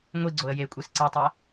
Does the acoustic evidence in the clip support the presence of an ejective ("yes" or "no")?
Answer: yes